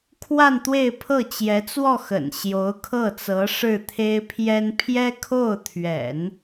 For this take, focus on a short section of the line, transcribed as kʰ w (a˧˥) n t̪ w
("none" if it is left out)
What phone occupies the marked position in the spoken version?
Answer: a˥˧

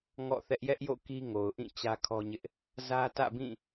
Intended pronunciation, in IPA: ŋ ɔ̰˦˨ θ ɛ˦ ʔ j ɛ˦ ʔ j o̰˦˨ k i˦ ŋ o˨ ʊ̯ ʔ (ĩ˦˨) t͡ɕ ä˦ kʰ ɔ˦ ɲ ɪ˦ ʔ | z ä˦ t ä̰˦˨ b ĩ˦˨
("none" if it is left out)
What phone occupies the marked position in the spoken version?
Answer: ĩ˦˨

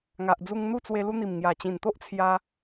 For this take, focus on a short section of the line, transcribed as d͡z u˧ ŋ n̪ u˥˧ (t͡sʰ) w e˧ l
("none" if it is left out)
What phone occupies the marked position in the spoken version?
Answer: t͡s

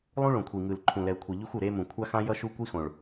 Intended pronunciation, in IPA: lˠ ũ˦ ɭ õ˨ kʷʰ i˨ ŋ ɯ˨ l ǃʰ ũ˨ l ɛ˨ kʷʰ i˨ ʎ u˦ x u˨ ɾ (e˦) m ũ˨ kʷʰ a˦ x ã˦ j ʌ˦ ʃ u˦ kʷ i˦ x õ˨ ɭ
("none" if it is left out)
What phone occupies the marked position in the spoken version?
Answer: e˦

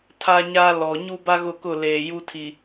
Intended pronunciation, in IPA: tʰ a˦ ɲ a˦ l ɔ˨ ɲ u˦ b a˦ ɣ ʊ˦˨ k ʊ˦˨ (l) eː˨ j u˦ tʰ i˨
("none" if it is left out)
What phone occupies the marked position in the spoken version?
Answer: l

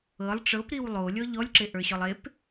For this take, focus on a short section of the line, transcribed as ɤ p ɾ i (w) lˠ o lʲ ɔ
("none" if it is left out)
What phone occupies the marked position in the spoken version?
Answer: w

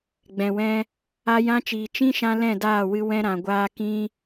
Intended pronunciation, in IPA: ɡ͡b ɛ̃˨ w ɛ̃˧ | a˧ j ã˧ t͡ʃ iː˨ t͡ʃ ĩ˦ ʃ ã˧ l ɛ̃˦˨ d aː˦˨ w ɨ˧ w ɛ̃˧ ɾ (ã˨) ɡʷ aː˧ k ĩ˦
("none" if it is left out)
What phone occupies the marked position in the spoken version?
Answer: ã˨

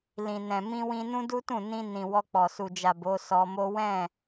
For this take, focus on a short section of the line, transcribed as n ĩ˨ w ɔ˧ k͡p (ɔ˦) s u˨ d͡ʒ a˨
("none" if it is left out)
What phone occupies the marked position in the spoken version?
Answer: ɔ˨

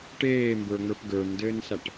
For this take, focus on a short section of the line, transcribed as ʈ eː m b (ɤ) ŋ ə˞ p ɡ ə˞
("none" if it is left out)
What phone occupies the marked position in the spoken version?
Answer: ə˞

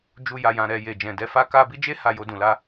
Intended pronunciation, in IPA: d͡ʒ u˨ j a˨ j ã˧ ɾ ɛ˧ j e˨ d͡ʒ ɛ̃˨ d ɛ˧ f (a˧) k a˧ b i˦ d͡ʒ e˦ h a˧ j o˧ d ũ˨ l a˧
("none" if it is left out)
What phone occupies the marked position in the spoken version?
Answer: a˧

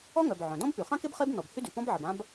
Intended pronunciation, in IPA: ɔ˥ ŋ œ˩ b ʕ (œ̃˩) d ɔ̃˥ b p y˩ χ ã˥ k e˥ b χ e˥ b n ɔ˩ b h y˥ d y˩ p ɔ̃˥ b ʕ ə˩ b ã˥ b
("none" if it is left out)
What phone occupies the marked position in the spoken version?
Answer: œ̃˩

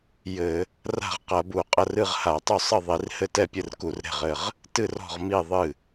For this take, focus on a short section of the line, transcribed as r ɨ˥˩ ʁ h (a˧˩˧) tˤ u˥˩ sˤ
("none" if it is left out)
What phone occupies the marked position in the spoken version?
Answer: a˧˩˧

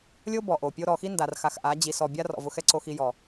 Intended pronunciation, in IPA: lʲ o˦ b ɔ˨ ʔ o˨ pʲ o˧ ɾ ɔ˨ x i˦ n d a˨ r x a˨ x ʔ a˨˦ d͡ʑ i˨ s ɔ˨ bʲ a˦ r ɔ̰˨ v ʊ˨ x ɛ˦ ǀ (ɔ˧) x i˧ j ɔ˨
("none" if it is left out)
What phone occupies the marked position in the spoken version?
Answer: o˧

